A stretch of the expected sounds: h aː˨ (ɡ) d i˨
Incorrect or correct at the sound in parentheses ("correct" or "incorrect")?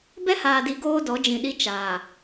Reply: incorrect